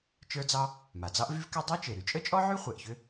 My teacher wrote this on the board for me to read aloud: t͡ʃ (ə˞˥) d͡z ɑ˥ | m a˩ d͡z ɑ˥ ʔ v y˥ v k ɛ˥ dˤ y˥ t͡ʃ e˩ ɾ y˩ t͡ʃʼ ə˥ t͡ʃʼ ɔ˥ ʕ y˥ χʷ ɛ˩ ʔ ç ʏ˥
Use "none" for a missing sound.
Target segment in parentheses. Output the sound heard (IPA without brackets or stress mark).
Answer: ə˞˥